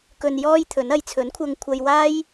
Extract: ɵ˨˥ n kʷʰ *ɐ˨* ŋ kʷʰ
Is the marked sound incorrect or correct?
incorrect